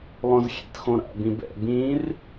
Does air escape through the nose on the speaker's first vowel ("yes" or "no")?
yes